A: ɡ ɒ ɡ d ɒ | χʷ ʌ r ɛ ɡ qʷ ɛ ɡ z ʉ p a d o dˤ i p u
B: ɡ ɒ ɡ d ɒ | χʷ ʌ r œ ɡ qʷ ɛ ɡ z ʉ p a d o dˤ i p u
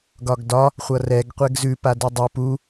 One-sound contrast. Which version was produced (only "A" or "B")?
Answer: A